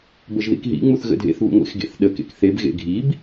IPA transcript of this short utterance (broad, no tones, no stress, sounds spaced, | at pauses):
b ə ʒ ð ḭ k ɦ ḭ ŋ͡m u θ ɣ ə̰ dʱ ḛ θ β ṵ ŋʷ ḛ x ɡ ḛ θ ɗ ə k ḛ k θ e b ɣ ḛ ɡʱ i b